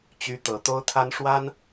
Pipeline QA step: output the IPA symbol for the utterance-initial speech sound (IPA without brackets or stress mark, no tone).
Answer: t͡ɕ